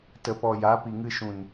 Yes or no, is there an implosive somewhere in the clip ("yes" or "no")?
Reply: no